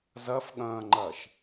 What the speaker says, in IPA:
zɐfɠɐ̃ːŋ͡ǃɐʃ

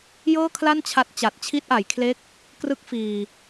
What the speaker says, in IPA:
jɤː˥˩kʰla˥˩nt͡ɕʰa˦˥t̚ t͡ɕa˨˩t̚ t͡ɕʰi˦˥t̚ʔa˩˦jkʰle˦˥k̚ | krɯ˦˥k̚fiː˨˩

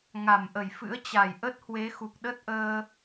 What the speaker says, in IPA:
ŋa˧˩mʔə˧˩jfɨ̰˧˥ə̯ t͡ɕa˧˩j ʔə˦˥t̚hwe˨˦ xu˨˩k̚ɗə˦˥t̚ʔəː˧

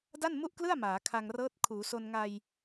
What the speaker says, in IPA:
da˥˩nmu˥˩ʔklɯ˥˩a̯ maː˩˦kʰa˧ŋ rɤː˦˥t̚ kʰuː˩˦so˧nŋa˧j

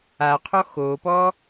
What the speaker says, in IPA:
aqʰɔ xopɔ

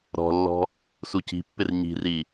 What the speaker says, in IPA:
ɾɔ̤lːɔ̤ | suci̤pːɪr ɲi̤ri

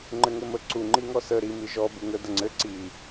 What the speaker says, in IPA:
ŋ͡ǃɘŋɘmə ǀu ŋ͡ǃiŋɔsə ɾi miʒɔ buŋə dəŋ͡ǀɘ ǀi

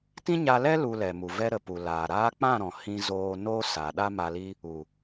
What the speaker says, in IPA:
tĩ˦ɲa˧lɛ˦ lu˧lɛ˨mu˨ vɛ˧ɾə˨ pu˨laː˨ɾaː˦ k͡pã˦˨ɾɔ̃˨ hĩ˧zoː˧noː˦ sa˨ ɗa˦ma˧li˦ | u˨

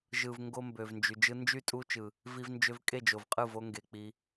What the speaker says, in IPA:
ʒɯ˨v ŋɡo˦mbø˨vnd͡ʒy˨ d͡ʒɯ˧nd͡ʒy˦˨tʼu˦t͡ʃɯ˨ | vi˧vnd͡ʒø˧v kʼe˦˨d͡ʒo˨vqʼɯ˦˨vo˦ ŋɡe˧ k͡pi˧

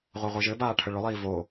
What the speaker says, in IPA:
ʁʷaʁʷiʒɘbaː ʈʰəɭʊlˠiː vo

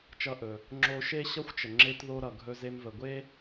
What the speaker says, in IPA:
t͡ʃʌ˧ʔɵ˩ | ŋ͡ǁo˧ʃe˥ɕʌ˥xʷt͡ʃə˩ ŋ͡ǁe˧tðo˧ ɾʌ˩ɡʱɵ˧ze˧mvə˩ ɡʷe˥

